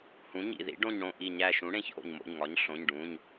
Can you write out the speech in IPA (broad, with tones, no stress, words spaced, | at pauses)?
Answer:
hũ˩˥ɲḭ˧˩ðḭ˩˥ ɖõ˧˩ɲɽõ˧˩ ʔi˧˩ɲæ˧˩ʃũ˩˥ɽẽ˩˧˩ç ʔo̰˧˩ɲmo̰˩˧˩ɲ ŋɒ˩˥ɲɬõ˩˧˩ɲ ɖũ˩˧˩ɲ